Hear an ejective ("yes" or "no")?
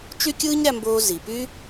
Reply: no